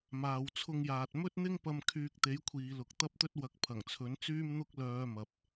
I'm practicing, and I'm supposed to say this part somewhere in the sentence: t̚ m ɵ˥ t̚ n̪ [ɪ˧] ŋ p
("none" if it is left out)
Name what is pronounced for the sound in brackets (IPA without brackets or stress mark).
ɪ˥